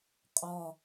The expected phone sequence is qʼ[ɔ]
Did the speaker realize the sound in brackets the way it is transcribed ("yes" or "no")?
yes